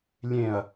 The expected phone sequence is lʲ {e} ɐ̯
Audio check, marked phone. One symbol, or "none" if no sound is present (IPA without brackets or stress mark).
ẽ